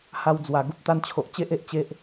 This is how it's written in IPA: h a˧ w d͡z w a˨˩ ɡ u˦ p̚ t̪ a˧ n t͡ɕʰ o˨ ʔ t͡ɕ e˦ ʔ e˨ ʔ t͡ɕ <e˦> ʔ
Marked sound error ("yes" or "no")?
no